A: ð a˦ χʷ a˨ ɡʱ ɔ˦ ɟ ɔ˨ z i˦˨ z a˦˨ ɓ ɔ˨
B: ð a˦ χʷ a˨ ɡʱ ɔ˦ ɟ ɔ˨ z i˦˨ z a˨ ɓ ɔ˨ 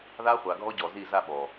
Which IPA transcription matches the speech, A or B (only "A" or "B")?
A